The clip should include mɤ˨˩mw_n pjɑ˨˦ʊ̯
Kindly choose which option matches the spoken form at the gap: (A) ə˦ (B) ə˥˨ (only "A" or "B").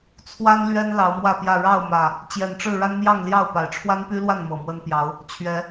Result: A